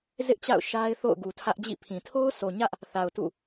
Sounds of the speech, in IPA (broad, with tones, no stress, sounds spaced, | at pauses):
z ɪ˦ ʔ t͡ɕ a̰˦˨ ʊ̯ ʃ a˦ ɪ̯ θ o̰˦˨ ʊ̯ ɡ u˨ tʰ ä˦ ʔ d͡ʑ ḭ˦˨ pʰ ĩ˨ tʰ o˦ ʊ̯ sʰ o˨ ɲ ä˦ ʔ | θ a˨ ʊ̯ t ṵ˦˨